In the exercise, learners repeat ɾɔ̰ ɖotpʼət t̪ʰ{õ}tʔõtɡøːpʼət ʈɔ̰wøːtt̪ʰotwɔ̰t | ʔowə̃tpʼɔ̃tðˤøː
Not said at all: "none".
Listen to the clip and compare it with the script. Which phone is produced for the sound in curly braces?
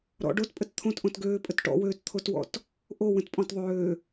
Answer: õ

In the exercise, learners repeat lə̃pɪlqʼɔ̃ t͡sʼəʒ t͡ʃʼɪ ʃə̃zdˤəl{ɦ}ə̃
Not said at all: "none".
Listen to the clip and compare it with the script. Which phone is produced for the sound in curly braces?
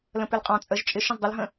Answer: ɦ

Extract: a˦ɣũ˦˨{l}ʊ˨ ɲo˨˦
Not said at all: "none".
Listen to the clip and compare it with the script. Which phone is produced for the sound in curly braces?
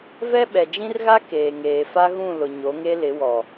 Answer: l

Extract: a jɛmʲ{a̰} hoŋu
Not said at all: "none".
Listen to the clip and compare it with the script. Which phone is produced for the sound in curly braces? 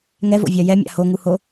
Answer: a̰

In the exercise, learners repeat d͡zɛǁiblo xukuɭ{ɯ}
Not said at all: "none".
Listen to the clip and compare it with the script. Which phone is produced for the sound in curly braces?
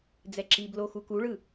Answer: ɯ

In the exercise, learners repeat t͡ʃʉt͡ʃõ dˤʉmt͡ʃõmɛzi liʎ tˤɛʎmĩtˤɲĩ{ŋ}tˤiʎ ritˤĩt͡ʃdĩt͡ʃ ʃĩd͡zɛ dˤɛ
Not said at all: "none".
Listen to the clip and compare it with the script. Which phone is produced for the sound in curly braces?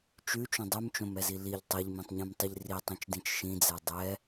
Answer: m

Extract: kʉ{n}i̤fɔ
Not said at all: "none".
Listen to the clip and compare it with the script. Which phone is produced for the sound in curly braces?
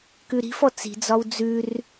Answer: ɾ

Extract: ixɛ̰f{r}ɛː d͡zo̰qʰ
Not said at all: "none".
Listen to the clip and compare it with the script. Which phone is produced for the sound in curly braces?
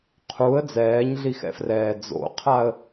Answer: r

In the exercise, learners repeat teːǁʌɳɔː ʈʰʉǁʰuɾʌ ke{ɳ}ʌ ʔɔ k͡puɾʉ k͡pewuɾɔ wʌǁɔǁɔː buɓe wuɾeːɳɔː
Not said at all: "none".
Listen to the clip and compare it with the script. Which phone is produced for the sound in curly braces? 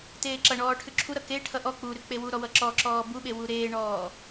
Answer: ʈʰ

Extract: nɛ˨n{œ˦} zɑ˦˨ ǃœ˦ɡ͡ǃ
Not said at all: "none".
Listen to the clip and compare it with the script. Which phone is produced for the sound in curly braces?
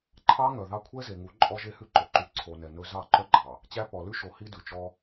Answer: ɵ˦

